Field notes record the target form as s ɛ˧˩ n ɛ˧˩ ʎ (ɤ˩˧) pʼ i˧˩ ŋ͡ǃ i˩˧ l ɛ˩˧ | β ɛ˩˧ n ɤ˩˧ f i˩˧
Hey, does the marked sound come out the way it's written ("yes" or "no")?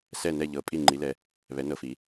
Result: yes